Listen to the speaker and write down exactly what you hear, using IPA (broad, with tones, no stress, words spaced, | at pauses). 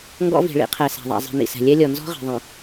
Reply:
ŋɡɔ̰˦vi̤˨ɭḭ˦qʰɛ˨ sa̤˨ðˤa̰˨ zˤi̤˨nḭ˨sɛ̤˨ lʲɛ˦lʲɔ˨ nzɔ̤˦ʁi̤˨ðˤĩ˨